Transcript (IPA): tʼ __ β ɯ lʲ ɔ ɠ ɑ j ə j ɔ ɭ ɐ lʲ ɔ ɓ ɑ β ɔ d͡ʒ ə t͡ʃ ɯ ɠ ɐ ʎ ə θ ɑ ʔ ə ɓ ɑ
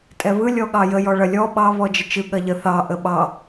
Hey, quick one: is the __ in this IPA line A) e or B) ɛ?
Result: B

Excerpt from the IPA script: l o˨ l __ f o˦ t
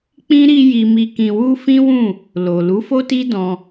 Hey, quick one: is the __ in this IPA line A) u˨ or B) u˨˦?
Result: B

